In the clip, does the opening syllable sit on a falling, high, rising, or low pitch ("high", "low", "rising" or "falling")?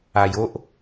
low